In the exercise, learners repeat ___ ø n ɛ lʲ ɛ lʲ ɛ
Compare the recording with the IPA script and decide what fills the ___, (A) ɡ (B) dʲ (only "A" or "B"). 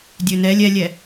B